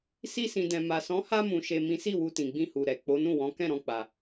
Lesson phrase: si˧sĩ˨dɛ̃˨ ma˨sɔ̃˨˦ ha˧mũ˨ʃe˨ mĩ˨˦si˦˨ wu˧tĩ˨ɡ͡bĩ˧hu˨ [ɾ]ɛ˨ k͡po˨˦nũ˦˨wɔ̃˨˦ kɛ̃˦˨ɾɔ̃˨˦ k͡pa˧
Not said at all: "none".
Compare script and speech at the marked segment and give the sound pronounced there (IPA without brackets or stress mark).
ɾ